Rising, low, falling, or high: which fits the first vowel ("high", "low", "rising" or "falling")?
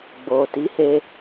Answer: low